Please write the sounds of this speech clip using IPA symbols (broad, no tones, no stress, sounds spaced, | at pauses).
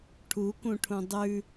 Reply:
ʈʰ u k ũ ʈʰ ũ dˤ ʉ